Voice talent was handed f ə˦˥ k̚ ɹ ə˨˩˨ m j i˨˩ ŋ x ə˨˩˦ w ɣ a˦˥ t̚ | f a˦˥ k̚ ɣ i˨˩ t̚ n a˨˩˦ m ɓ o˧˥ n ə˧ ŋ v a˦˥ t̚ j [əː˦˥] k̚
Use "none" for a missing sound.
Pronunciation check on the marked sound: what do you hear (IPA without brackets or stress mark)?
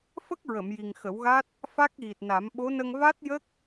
ə˦˥